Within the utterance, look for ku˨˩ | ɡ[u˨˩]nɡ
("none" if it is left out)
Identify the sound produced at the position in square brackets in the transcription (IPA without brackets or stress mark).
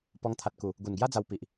u˨˩